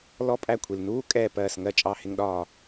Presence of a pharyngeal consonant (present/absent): absent